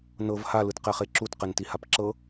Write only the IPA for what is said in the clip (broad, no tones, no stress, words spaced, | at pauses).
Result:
nɤv ha lɯtqɛχeǁut qɛntihapǁɤ